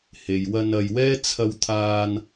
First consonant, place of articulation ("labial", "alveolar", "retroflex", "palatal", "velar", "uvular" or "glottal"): glottal